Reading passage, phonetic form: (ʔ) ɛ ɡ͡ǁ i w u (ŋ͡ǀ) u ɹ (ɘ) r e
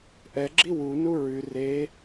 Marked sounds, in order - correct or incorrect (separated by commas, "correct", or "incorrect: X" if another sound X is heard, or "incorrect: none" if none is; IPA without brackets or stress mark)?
correct, incorrect: n, incorrect: ʉ